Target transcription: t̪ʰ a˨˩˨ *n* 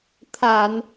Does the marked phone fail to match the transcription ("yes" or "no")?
no